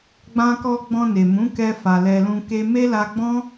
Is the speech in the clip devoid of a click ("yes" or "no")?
yes